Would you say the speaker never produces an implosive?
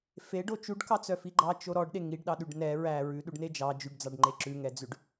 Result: no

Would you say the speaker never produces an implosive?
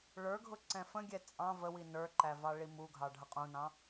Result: yes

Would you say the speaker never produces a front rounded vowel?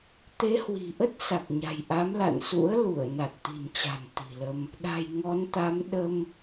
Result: yes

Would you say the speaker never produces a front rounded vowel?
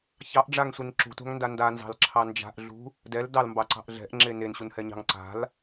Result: yes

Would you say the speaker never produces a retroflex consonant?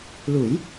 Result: yes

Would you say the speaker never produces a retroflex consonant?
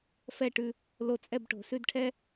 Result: no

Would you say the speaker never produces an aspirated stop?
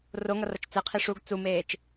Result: no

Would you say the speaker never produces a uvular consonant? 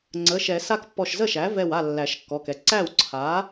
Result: yes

